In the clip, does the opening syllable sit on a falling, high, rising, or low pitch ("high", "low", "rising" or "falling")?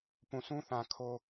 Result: low